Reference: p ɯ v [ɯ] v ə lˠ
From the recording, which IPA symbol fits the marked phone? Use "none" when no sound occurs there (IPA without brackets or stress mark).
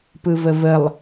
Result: ə